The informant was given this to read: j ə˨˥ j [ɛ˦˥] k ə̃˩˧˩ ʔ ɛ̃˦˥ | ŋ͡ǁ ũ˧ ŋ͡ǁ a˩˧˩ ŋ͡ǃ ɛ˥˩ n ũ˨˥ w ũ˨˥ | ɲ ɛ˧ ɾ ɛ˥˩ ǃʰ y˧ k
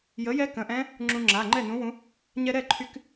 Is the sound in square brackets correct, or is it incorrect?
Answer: correct